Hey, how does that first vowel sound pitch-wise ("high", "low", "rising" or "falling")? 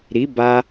rising